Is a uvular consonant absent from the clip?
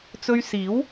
yes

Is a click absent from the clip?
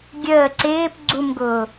no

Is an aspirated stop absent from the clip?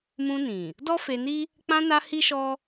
yes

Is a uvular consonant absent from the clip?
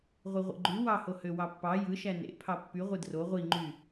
no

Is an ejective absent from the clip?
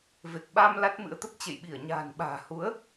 yes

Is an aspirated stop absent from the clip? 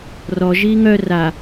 yes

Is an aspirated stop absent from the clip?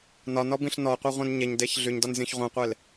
yes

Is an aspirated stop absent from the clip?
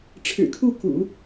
no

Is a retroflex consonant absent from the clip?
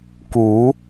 yes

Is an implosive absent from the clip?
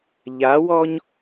yes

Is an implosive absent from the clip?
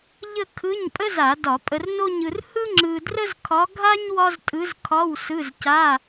yes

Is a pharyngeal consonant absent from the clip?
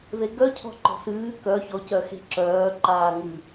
yes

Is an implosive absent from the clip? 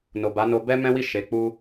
yes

